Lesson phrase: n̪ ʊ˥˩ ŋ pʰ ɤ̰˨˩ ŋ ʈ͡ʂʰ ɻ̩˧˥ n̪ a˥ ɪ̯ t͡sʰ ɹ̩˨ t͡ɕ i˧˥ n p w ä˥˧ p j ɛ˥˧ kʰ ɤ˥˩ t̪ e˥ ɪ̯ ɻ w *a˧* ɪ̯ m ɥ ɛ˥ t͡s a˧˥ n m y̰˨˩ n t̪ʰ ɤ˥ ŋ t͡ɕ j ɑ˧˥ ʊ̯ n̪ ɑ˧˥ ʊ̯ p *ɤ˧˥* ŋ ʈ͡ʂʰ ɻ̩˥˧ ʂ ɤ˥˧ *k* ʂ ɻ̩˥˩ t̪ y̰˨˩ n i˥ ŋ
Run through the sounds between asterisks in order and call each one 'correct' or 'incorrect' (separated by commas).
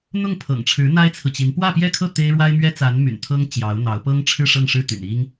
incorrect, incorrect, incorrect